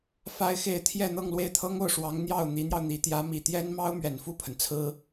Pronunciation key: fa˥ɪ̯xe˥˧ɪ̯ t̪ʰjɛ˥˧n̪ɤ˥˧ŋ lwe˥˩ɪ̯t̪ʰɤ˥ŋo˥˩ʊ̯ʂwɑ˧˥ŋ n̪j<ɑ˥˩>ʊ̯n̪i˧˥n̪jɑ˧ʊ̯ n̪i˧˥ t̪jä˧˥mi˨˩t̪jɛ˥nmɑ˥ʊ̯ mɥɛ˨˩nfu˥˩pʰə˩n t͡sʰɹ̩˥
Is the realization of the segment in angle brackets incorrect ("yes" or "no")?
no